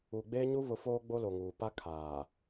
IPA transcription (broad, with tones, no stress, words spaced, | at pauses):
u˨ ɡ͡beː˦ɲu˦βʊ˨˦ foː˦ɡ͡bo˦lo˨ŋuː˨ pa˦kʰaː˨